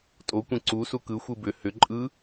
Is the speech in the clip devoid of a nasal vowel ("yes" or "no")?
no